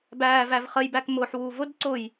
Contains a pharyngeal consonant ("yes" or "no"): yes